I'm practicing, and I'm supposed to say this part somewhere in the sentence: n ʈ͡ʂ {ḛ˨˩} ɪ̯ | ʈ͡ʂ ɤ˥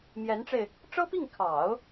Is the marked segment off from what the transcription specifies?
yes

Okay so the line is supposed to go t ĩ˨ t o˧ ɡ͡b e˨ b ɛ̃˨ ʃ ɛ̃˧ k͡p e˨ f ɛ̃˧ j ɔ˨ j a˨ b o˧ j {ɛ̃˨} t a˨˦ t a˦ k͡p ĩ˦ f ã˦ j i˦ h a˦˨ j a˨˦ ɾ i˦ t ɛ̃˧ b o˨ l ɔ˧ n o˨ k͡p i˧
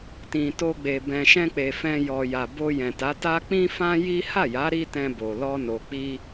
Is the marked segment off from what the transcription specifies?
no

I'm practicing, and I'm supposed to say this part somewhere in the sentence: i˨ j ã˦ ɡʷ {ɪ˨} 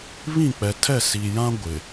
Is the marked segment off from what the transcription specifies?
no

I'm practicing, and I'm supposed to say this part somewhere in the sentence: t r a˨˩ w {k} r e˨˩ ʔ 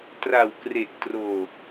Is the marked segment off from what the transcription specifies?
no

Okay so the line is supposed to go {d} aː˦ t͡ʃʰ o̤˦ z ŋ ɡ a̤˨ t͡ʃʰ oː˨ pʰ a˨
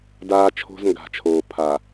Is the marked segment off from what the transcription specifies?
no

